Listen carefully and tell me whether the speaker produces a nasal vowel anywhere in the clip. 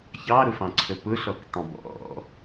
yes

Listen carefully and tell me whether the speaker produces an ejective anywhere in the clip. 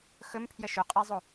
yes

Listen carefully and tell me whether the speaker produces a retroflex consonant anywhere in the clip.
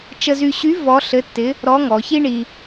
yes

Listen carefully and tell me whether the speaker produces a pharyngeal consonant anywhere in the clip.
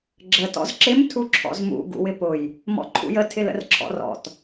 no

